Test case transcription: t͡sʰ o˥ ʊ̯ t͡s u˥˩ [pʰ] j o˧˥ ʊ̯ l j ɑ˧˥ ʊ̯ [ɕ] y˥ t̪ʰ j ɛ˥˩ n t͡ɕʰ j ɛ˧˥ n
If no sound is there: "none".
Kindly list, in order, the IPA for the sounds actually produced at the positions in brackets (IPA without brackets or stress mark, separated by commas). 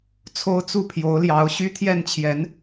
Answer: pʰ, ɕ